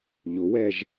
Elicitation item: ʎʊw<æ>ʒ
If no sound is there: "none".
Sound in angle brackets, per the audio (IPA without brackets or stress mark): ɛ